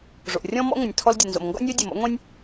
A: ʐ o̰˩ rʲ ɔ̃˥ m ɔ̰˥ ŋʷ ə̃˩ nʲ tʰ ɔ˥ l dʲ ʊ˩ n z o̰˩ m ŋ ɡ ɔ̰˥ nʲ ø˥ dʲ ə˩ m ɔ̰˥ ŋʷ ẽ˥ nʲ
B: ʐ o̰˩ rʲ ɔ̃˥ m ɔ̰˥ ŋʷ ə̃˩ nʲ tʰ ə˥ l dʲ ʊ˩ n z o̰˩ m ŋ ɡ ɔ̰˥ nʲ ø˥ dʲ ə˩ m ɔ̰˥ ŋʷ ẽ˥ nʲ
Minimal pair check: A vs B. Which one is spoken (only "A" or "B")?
A